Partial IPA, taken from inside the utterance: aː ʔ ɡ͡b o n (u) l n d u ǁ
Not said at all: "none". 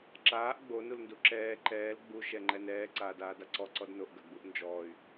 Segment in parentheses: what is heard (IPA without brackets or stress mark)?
u